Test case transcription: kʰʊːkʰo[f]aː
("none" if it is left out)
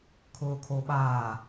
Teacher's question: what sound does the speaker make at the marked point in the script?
ɓ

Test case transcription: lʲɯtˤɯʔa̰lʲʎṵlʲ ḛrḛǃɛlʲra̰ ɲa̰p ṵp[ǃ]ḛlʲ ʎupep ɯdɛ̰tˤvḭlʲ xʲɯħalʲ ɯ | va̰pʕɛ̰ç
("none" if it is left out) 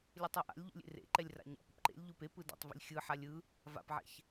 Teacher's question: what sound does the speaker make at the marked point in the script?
ǃ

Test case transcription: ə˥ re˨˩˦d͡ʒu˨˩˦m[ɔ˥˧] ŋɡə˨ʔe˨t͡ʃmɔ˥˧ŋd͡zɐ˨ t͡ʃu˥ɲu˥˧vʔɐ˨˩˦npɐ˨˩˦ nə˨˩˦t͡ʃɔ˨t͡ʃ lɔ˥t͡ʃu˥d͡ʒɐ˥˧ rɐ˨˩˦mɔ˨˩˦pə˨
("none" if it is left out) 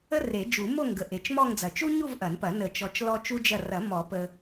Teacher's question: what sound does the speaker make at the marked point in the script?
o˥˧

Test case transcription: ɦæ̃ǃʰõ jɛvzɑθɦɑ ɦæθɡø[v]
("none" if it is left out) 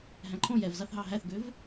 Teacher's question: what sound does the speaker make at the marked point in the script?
v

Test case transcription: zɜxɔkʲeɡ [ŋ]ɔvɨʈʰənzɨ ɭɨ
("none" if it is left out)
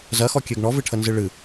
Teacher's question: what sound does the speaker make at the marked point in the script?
ɳ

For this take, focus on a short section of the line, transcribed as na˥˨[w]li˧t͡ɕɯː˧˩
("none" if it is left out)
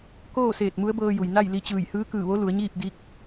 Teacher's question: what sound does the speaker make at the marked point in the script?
j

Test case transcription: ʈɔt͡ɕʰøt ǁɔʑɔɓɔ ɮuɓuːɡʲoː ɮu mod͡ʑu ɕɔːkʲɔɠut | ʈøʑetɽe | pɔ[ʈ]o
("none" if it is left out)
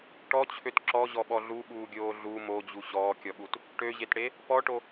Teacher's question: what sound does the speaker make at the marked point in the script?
ʈ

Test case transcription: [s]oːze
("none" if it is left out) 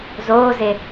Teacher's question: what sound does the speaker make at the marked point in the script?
z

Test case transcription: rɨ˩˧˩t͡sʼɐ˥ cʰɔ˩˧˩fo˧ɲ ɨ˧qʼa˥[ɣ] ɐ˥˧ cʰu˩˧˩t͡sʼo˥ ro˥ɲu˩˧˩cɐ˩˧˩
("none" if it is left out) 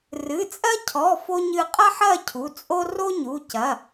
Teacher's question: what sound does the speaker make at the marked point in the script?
ħ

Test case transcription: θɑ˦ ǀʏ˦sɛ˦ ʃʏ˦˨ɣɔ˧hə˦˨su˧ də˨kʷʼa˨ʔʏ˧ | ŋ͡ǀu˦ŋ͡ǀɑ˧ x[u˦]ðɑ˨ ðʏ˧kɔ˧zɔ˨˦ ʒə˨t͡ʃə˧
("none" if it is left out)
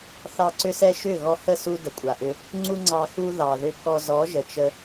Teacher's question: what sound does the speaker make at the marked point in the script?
u˦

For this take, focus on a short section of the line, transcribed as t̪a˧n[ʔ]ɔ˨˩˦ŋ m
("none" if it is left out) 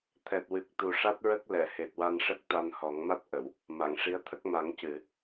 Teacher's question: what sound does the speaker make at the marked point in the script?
h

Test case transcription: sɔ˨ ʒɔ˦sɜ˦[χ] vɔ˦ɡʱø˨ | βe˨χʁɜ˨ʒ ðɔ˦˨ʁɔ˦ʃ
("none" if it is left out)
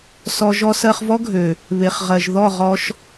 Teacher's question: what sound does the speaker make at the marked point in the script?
χ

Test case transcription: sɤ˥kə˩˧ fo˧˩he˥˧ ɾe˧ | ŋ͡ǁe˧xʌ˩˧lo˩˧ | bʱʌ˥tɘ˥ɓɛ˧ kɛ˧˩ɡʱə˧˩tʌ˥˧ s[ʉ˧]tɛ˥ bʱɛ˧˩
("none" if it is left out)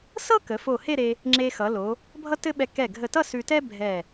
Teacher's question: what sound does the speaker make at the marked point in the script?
ʉ˧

